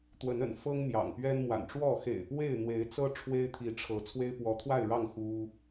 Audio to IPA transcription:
t̪ w ə˨˦ n ə̰˨˩ n f ɤ˦ ŋ n̪ j ɑ̰˨˩ ŋ p ɥ ɛ˦ n m w a̰˨˩ n ʈ͡ʂ w ɔ˥˨ x ḛ˨˩ ɪ̯ p w e˥˨ ɪ̯ n̪ w e˨˦ ɪ̯ t͡s ɤ˦ ʈ͡ʂʰ w e˦ ɪ̯ t̪ʰ i˨˦ ʈ͡ʂʰ ɤ˨˦ t͡sʰ w e˦ ɪ̯ p w ɔ˨˦ t̪ʰ w a˥˨ ɪ̯ ɻ ɑ˥˨ ŋ x u˦

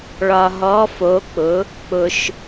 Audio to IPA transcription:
ɭ ɒ˩ ɦ ɔ˩˧ f o˩˧ k͡p ʊ˩˧ | k͡p ʊ˩ ʃ

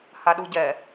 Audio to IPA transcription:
h a ɗ u ɟ ɛ

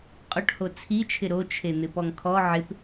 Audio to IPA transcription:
qʼ ʊ ʈ h o t͡sʰ i t͡ʃʰ ɪ ɾ o t͡ʃʰ e n̪ ɪ p ɔ ŋ kʰ ɔ ʕ ɪ p

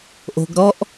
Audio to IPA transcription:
ʔ o̤˨ ɡ ɾ ɔ˧ ʔ

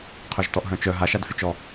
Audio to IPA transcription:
qʰ œ ʒ t ɔ ʔ ɦ œ̃ t͡ʃ œ ɦ a ʃ a d f y t͡ʃ ɔ

